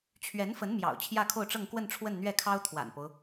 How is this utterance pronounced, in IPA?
t͡ɕʰ ɥ ɛ˧˥ n f ə˧˥ n m j ɑ̰˨˩ ʊ̯ t͡ɕʰ j ä˥˧ kʰ o˥˧ ʊ̯ ʈ͡ʂ ɤ˥˧ ŋ k w ə˥˧ n ʈ͡ʂʰ w ə˥˧ n n̪ ɥ ɛ˥˩ kʰ ɑ˥ ʊ̯ t̪ʰ w a̰˨˩ n p o˦ ʊ̯

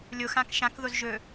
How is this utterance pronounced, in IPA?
lʲ o x ã k ʃ ã k ð o z ʒ ɵ

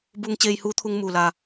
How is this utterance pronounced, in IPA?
b uː˧ ŋ t͡ɕ eː˧ j h uː˧˥ t̪ʰ u˧ ŋ m uː˩ l a˩

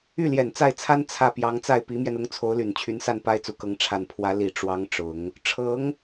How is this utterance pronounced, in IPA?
y˥˩ l j ɛ˨˩ n t͡s a˥˩ ɪ̯ t͡sʰ a˥ n t͡sʰ ä˥˩ p j ɑ˧˥ ŋ t͡s a˥˩ ɪ̯ p i˧˥ m j ɛ˧ n ʊ˧˥ ŋ t͡sʰ o˧˥ ʊ̯ l y˨˩ n t͡ɕʰ y˧˥ n s a˥˩ n p a˥ ɪ̯ t͡s u˨˩ k ɤ˧˥ ŋ ʈ͡ʂʰ a˨˩ n pʰ w ä˧˥ l i˨˩ ʈ͡ʂ w ɑ˧˥ ŋ ʈ͡ʂ ʊ˨˩˦ ŋ | ʈ͡ʂʰ ɤ˧˥ ŋ

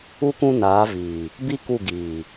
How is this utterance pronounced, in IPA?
u˦ k ũ˦ n aː˨˦ v iː˨ | b i˦ k u˦˨ ɡ iː˨

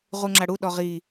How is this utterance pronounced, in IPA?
ʁ u ŋ͡ǁ a ɽ u ɗ ɔ ʁ i

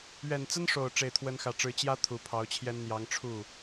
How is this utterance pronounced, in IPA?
ɥ ɛ˨˩ n t͡s ə˥ n ʂ o˨˩ ʊ̯ ʈ͡ʂ e˥˩ ɪ̯ t̪ʰ w ə˥ n x ä˥˩ ʈ͡ʂ ɻ̩˥ t͡ɕ j ä˥ t̪ʰ u˨˩ pʰ ɑ˧˥ ʊ̯ t͡ɕʰ j ɛ˥ n n̪ j ɑ˧˥ ŋ ʈ͡ʂʰ u˥˩

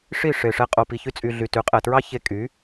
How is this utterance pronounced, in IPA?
ʂ i˦˨ ʂ e˨ ʂ ɛ˧ qʼ o˨ p i˨ ç y˧ t͡sʼ y˨ ɮ y˨ t y˨˦ qʼ ɛ˨ t ɹ ɑ˦ ç e˧ kʼ y˨˦

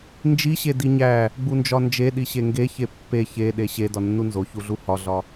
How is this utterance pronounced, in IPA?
n d͡ʒ i ɕ e d i ɲ æ | ɡ͡b u n d͡ʒ ɒ n d͡ʒ e ɗ i ɕ e ŋ ɡ e ç e pː e ç e ɗ e ɕ e d ɒ nː u n z o ç u ɮ u h ɒ ɮ ɒ

